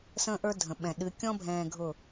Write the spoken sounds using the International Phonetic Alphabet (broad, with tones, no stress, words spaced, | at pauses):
sə̃ː˦ʔə˞˦ dʱə̃˨ɓɛ̃˨ ɗɨ˨˦ kʲɔ̃˦bʱɛ̃ː˨ ɡʱʊ˦˨